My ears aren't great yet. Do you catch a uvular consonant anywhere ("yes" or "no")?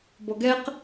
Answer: yes